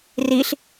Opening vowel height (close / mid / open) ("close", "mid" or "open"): close